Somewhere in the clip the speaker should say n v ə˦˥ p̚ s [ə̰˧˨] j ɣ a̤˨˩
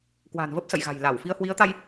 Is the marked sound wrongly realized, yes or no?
no